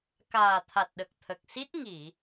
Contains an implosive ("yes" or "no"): yes